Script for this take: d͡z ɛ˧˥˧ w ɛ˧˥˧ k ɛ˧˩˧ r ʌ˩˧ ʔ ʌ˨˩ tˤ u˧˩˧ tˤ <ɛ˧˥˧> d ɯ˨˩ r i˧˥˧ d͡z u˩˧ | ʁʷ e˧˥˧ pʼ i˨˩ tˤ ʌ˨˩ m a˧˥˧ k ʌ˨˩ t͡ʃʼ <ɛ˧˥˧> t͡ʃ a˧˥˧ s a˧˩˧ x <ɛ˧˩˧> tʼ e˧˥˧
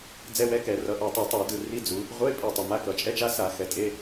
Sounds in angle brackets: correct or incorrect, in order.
incorrect: ɛ˧˩˧, correct, incorrect: ɛ˩˧

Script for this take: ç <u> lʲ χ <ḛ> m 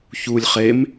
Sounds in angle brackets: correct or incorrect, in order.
correct, incorrect: e

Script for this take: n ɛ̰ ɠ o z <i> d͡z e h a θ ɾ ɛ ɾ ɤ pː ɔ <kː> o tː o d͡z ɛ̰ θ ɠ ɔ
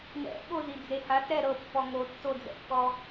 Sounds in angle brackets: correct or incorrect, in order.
correct, incorrect: ŋ

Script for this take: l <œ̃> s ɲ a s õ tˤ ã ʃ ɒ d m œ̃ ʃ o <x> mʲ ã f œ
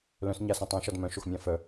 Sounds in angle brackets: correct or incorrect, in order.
correct, correct

